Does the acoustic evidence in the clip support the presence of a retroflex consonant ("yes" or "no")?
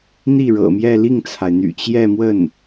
yes